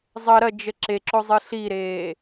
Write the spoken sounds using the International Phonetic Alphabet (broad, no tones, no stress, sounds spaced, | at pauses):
zˤ ə ɾ ɐ d͡ʒ ə ǁ e ǁ o zˤ ɨ ɬ i ɾ eː